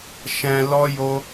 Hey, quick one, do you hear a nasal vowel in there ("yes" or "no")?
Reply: yes